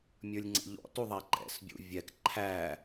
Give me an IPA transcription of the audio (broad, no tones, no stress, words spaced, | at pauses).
mʲə˞lʲŋ͡ǀɛ̰ʎɔ̰ tuðˤæǃɛ̰s bʲṵvʲɛk ǃʰæ